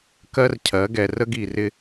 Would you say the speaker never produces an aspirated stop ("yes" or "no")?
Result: no